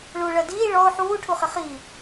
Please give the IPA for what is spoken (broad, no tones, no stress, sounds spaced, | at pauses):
ɭ u ɭ ɜ d iː ɭ ɔ ʊ̯ ħ uː ʈʰ u χ ɪ χ i